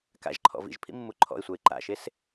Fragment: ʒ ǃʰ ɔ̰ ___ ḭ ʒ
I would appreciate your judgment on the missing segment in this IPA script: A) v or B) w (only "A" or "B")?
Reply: A